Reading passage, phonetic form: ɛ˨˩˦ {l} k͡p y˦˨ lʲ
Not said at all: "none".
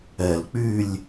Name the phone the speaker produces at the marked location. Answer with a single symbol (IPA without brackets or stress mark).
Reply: l